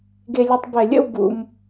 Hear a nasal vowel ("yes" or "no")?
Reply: no